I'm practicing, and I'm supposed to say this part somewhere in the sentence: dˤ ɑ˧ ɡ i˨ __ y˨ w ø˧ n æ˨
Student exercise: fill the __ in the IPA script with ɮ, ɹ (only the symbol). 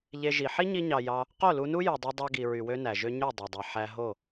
ɹ